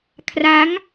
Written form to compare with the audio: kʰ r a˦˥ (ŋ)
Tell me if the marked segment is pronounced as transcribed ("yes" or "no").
yes